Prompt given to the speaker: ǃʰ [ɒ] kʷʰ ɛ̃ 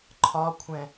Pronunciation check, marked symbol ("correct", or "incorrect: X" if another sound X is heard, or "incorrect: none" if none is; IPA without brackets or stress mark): correct